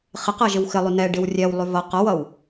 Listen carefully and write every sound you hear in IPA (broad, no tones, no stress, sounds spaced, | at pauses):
χ ɪ q ɜ ʒ ɪ w x ɪ lˠ y n ɛ ɖ ɪ w rʲ ɛ w lˠ y v ʌ q ʌ w ʌ w